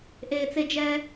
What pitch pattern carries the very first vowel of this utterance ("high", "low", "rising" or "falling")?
high